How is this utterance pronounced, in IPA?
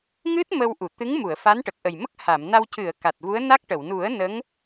ŋɨ˦˥t̚ mə˧w ʔu˨˩˨t̪ɨ˧˥ŋmu˨˩˨ə̯ fa˧˥nʈə˨˩k̚ʔə˨˩jmə˦˥k̚ ha˨˩˨mna˧w cɨ˨˩˨ə̯ ka˨˩t̚vu˧˥ə̯na˦˥k̚ʈə˨˩˨w nu˨˩˦ə̯ nə˧˥ŋ

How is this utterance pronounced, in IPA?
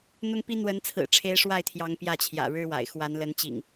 n̪ʊ˦ŋ pi˦ n̪wə˨˦nt͡sʰɹ̩˨˩ʈ͡ʂʰe˨˦ɪ̯ ʂwa˥˨ɪ̯t̪ʰjɑ˨˦ŋ pjä˥˨t͡ɕʰjä̰˨˩ɻɻ̩˦wa̰˨˩ɪ̯ xwa˨˦nlə˨˦nt͡ɕḭ˨˩ŋ

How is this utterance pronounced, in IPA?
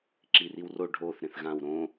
ǁiriwro ɖʱoθ ɾẽθɣãw ɾõ

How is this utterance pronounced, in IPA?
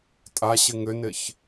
tʼaɕɪ ŋʏnɪç

